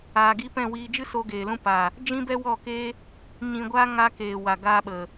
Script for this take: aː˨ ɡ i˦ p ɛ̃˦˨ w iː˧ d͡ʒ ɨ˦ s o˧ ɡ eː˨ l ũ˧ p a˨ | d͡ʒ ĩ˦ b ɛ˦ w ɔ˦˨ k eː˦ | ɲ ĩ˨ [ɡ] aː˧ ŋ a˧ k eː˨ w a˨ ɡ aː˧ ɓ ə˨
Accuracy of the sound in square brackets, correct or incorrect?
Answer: incorrect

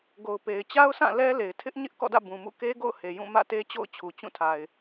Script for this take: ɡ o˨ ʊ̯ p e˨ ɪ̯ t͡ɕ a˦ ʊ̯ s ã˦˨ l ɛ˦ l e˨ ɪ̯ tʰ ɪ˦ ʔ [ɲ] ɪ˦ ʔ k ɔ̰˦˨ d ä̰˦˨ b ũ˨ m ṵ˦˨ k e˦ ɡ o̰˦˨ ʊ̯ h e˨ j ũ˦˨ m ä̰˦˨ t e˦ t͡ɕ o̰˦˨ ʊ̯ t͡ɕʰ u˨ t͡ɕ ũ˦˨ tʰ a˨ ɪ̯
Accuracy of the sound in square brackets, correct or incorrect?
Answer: correct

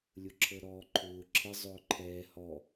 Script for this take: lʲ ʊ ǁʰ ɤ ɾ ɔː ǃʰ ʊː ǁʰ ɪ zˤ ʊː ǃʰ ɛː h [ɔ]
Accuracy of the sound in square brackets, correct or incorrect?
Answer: correct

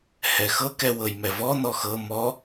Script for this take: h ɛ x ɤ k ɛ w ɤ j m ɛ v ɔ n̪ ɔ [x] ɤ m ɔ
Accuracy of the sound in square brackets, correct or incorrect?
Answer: correct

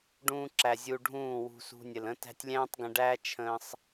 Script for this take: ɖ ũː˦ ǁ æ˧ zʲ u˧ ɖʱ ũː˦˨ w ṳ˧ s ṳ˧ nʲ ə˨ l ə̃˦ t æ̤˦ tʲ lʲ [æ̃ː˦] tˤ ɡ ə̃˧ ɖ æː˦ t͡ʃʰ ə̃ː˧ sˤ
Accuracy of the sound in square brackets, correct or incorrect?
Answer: correct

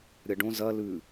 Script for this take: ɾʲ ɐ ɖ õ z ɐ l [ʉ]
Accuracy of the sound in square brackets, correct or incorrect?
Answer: correct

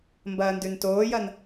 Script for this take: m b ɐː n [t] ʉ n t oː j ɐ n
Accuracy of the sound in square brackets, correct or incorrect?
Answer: incorrect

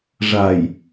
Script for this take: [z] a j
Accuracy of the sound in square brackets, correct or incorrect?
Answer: incorrect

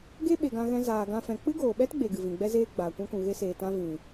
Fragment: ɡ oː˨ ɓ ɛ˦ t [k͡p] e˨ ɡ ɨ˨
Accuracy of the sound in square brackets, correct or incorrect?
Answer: incorrect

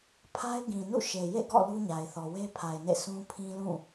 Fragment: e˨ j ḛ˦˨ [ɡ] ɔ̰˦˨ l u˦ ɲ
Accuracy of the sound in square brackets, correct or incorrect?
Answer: correct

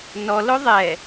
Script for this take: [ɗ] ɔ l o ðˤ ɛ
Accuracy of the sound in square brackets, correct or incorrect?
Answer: incorrect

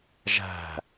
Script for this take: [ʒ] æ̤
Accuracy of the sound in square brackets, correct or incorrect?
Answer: correct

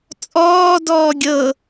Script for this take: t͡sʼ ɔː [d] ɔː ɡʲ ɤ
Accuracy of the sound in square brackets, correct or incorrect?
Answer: correct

